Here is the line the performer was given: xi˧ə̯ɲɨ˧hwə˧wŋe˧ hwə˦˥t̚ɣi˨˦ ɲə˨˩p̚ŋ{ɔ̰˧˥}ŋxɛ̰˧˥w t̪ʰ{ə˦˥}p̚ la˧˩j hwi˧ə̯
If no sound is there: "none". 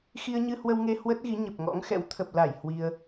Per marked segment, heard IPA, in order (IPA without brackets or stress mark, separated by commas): ɔ̰˧˥, ə˨˩